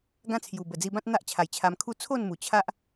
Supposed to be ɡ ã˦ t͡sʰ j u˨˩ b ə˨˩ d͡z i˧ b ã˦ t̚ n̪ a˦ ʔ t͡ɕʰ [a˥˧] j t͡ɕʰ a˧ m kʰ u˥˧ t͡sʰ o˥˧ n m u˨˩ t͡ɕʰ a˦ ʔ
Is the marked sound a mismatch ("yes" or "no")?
yes